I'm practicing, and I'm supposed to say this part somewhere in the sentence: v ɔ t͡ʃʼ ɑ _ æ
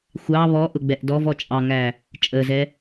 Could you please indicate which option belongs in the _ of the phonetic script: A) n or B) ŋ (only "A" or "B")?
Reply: B